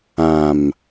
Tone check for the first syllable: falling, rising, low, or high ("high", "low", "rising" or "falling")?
low